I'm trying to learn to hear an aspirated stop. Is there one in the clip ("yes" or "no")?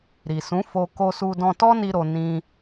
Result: no